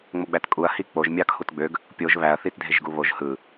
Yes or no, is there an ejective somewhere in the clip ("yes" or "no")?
yes